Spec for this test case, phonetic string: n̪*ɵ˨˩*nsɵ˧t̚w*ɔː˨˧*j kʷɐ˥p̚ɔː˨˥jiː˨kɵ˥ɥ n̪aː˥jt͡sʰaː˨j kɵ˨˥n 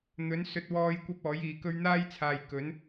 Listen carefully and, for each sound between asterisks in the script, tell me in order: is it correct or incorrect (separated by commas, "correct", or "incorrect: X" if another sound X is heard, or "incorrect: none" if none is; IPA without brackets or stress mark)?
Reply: incorrect: ɵ˨˥, incorrect: ɔː˧